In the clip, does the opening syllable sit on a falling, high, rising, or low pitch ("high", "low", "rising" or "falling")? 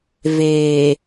low